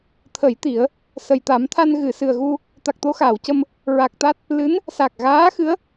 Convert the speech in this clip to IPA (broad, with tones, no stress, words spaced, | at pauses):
t̪ʰə˨˩˦j t̪i˨˩˦ə̯ | sə˨˩jt̪a˨˩˦mt̪ʰa˧n ɣɨ˨˩˨sɨ˨˩ə̯ɣu˧ | t̪a˨˩k̚t̪o˧xaː˨˩˨wcə˧m | ɹa˨˩k̚t̪a˦˥t̚ | lɨ˧˥n | sa˨˩k̚ɣaː˧˥xɨ˧˥ə̯